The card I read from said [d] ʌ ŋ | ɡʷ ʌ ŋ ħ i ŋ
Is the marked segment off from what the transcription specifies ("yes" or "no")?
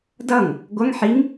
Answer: no